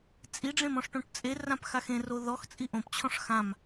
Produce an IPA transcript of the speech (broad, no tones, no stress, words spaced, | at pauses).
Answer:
t͡sʼiɖ͡ʐẽm ɔ̃ʂʈõʈt͡sʼerãp xaxẽro ðɔxt͡sʼi ʔõpt͡ɕʰɔ̃ʂ xãm